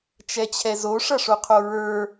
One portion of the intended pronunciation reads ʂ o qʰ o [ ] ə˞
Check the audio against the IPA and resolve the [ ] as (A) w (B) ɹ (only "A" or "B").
B